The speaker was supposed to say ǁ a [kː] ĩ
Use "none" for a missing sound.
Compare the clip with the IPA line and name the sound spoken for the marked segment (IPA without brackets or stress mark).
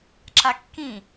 kː